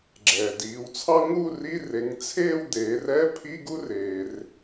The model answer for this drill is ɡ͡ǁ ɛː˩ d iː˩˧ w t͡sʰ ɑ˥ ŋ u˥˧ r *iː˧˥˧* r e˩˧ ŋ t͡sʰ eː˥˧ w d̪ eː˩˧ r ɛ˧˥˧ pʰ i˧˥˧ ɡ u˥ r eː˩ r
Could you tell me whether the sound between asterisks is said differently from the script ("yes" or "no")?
yes